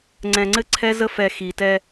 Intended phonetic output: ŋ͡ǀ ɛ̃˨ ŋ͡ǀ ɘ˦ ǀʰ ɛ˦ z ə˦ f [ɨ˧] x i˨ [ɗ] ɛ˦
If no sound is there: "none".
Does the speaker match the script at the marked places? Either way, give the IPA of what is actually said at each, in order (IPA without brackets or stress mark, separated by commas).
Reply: ɛ˧, t